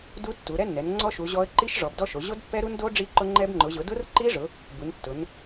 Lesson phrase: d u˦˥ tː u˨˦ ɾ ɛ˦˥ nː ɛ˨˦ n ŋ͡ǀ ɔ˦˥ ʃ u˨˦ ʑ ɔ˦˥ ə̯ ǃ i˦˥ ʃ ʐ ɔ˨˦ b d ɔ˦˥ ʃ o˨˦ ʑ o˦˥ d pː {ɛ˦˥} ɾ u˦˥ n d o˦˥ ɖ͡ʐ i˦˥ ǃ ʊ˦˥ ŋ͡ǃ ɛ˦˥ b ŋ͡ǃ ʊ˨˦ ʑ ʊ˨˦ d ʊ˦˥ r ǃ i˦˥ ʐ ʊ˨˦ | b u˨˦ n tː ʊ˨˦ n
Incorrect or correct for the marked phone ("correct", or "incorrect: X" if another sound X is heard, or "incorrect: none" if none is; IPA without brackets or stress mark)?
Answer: correct